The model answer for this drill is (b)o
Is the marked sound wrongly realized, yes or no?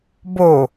no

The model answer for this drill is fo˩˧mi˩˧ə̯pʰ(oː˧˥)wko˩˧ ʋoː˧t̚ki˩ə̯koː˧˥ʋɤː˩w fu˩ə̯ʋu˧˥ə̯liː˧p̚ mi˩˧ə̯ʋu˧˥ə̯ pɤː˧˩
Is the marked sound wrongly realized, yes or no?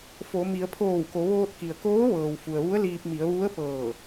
yes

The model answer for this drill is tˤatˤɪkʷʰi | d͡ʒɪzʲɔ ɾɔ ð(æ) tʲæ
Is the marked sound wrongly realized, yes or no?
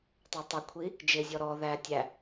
no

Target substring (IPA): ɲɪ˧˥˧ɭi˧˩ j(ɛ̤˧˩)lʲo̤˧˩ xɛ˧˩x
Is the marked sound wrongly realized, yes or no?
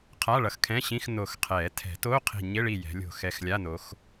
yes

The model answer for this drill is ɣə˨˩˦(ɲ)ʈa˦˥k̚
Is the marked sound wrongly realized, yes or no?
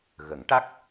yes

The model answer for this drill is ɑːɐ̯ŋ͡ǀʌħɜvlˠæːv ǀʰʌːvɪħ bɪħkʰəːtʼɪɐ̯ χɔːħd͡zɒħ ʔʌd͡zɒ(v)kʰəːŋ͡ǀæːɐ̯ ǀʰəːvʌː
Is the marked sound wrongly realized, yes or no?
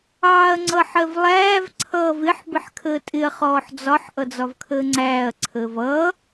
no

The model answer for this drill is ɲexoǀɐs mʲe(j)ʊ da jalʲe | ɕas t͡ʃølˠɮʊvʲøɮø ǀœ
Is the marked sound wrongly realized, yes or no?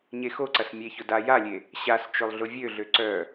yes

